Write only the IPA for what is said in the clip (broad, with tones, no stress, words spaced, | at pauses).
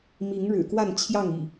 mi˨˦ŋɻɻ̩˨˩kwa˥˨nt͡ɕʰjɑ˥˨ŋ ḭ˨˩